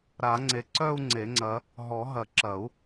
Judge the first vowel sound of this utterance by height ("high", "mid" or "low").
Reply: low